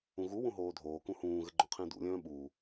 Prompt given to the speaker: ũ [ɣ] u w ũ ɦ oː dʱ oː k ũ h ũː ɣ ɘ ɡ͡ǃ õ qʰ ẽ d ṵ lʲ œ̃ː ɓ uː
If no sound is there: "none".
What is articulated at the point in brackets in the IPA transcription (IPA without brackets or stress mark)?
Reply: ɣ